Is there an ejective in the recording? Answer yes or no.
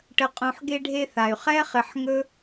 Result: yes